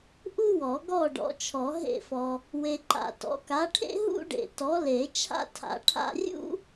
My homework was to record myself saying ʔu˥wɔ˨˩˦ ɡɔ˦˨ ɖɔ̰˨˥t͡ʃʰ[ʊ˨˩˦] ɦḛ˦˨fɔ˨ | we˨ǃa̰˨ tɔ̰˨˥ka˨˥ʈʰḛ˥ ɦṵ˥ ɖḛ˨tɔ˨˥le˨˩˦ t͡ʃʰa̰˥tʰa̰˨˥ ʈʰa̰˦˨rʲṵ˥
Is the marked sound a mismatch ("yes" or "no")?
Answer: yes